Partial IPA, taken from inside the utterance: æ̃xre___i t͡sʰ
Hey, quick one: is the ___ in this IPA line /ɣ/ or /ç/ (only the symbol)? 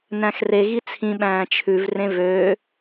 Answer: ɣ